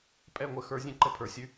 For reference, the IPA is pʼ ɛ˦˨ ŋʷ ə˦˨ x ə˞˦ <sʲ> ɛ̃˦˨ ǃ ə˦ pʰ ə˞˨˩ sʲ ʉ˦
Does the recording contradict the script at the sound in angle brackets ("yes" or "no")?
yes